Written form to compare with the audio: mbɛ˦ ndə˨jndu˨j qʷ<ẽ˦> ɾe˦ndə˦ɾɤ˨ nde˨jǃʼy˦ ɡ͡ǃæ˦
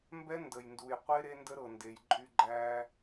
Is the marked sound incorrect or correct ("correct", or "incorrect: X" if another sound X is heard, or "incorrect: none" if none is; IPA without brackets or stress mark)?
incorrect: e˦